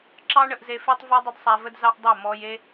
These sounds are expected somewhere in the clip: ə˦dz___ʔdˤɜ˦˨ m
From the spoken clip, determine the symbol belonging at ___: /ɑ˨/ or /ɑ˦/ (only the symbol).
ɑ˦